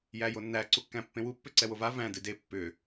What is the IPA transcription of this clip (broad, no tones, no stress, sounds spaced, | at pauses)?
j æ j o nː æ ǀ u kː æ̃ pː ẽ w u pː ʏ ǀ ɛ w o v a v æ̃ d ɨ d e pː ʏ